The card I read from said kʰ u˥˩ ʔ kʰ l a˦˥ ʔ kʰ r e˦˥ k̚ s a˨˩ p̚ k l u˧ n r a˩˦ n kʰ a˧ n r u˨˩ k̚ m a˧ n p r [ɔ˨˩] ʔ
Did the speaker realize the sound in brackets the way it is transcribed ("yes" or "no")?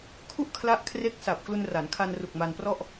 no